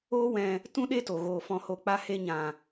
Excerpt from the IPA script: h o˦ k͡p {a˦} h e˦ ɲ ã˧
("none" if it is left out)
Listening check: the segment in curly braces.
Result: a˦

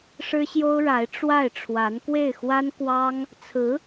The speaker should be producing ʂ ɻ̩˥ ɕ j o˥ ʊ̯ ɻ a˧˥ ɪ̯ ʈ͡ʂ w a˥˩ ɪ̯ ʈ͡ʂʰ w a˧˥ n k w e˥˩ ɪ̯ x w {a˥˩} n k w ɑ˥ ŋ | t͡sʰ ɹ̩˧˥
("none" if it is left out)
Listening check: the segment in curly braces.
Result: a˥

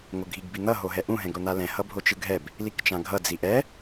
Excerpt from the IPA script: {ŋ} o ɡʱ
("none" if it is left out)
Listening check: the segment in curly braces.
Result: ŋ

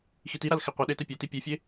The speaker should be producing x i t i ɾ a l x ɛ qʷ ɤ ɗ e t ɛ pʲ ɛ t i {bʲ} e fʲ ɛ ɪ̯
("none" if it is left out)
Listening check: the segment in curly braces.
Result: pʲ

